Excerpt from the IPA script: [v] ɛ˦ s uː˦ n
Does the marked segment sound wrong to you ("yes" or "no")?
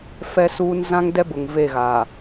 yes